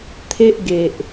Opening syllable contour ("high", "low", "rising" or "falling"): high